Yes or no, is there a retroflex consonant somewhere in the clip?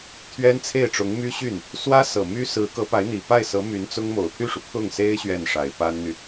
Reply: yes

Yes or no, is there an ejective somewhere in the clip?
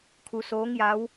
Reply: no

